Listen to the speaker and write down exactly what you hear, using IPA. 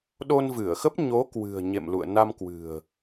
ɗo˧nvɨ˧˩ə̯xə˦˥p̚ɲo˨˦ kwɨ̤˨˩ə̯ ɲḛ˧˨mlṵ˧˨ə̯ na˧mkwɨ̤˨˩ə̯

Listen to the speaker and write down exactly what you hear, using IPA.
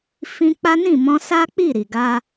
fĩ˧k͡pa˦nĩ˦˨mɔ̃˧ sa˦k͡pi˦˨ ɾi˨ɡa˧

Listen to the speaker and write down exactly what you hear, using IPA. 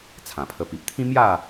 t͡sʰã˨˩pʰə˧pi˨p̚ t̪ʰĩ˦mja˥˧

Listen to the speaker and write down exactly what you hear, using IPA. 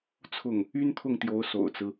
t͡sʰʊ˥˩ŋ | y˥nt̪ʰʊ˥˩ŋt̪jo˧˥ʊ̯ so̰˨˩ʊ̯t͡sɹ̩˦

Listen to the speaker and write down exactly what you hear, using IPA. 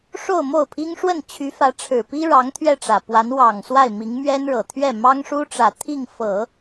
ʂo˥˧ʊ̯mo˥˩ʊ̯pʰi˥ŋ ʂwə˥˩n t͡ɕʰy˧˥fä˧˥ʈ͡ʂʰɻ̩˨˩ pi˥ɻɑ˧˥ŋ t̪ʰɥɛ˥˩ʈ͡ʂä˨˩pwa˧˥n wɑ˨˩ŋ swa˥˩ɪ̯mi˧˥ŋ mɥɛ˥nɻɤ˨˩t̪ʰɥɛ˥˩ mɑ˥ŋʂu˥ʈ͡ʂä˨˩ t̪ʰi˥˩ŋ fɤ˨˩˦

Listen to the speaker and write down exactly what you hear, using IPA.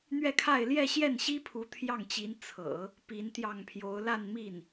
n̪ɥɛ˥˧kʰa˥˧ɪ̯ ljɛ˥˧ɕjɛ˥˩nɕi˥ pʰu˧˥t̪ʰjɑ˥˩ŋt͡ɕi˧˥n t͡sʰɤ̰˨˩˦ | pi˧˥nt̪jɑ˥˩ŋpʰjo˧˥ʊ̯ la˥˧nmi˥˩n

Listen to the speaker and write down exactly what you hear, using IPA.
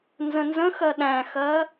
nzə̃nzə̃xɜ ɗæ̃xɜ

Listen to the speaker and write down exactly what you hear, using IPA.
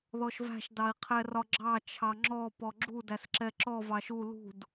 ðɔʃvæ̤ʃ dɑi̯qʰɛrɒɡ͡ǁɑ t͡ʃʰɑŋ͡ǁɔ pɔɡ͡ǁu dæsǁɛǁɔ vɑʃu lṳd

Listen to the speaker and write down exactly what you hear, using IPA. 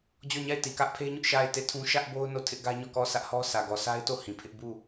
d͡ʑɔ˦˨ɲa˦˨ɪ̯ti˨kä˦ʔ pʰe˦ɲʊ˦ʔ ʃa˦˨ɪ̯te˦˨tʰũ˦ ʃä˦ʔbo˦ʊ̯ no˦˨tʰɪ˦ʔɡä˦ɲɔ˦˨ kɔ˦˨sʰä˦ʔhɔ˦ sʰä˨ɡɔ˨sʰa˦ɪ̯to˦˨ hĩ˨pʰɪ˦ʔ bu˦˨

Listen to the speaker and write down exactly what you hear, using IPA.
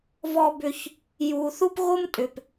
vɔ˦bʏ˦ç | ju˨θu˦pɣo˦m tʼʏ˨p

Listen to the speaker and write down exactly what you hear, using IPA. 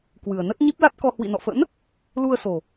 kwɨ˨˩ə̯nə˦˥t̚ ɲi˦˥p̚la˦˥t̚kɔ˧ hwḭ˧˨nɔ̰˧˨fə̰˧˥n | lu˧ə̯so˨˩

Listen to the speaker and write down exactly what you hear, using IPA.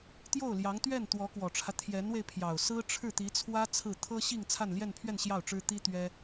t̪jo˥˩ʊ̯ljɑ˧˥ŋ t̪ɥɛ˥˩nt̪wɔ˧˥kwɔ˨˩ʈ͡ʂʰä˦ t̪ʰjɛ˧˥nwe˧ɪ̯pʰjɑ˨˩ʊ̯ sɹ̩˥ʈ͡ʂʰɻ̩˥˩t̪i˧˥t͡sʰwä˥ t͡sʰɹ̩˥˩ t̪ʰɤ˥ɕi˥˧ŋ t͡sʰa˥˧nljɛ˥˧npʰɥɛ˥˧n ɕjɑ˥˩ʊ̯ʈ͡ʂɻ̩˥ t̪i˥ t̪ɥɛ˥

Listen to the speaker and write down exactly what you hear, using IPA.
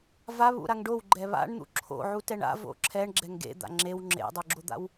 vaβṵɾaŋ ɖowɡ͡ǃɛ βa̰ɳn̪ṵ ǁʰo̰ ʕutɛɳa̰ vo̰ǁʰɛɳ ɡ͡ǁɛŋɡḛ d̪a̰ŋ͡ǁew ŋ͡ǁḛdˤuɡ͡ǁod̪a̰w

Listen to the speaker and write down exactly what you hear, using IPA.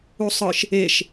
usˤɯʃ | eʃ

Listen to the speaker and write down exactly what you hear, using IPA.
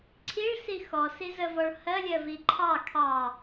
ǀʰiɭsi xɔsi zəvɔɭ hɜlʲɜvi ǃʰɑ kʰɑ

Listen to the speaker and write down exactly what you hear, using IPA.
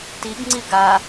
tiɡŋ͡ǀi ɡa

